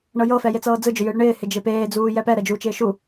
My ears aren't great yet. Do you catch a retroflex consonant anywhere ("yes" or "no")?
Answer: yes